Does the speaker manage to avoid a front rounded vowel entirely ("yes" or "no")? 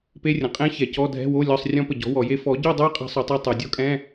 yes